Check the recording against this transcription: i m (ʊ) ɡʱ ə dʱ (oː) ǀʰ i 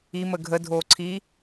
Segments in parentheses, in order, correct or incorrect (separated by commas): incorrect, correct